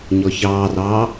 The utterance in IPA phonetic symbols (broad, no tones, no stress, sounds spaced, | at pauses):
ɲ ɔ ç ɑː r ɑː